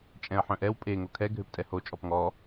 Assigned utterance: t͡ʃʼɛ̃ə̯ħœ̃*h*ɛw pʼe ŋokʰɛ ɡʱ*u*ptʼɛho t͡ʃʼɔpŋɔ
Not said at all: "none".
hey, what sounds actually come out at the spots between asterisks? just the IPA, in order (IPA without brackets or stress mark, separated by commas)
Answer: ʔ, ø